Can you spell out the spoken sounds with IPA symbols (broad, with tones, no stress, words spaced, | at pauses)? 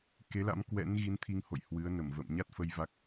ke˨˦la̰˧˥m kwɛ̰˧˥n ɣi˨˦nt̪ʰi˧ŋho̰˧˨j hwɨ˨˦ə̯nə˧˩mvə̰ː˧˨m ɲa˦˥t̚fə˧j va˦˥k̚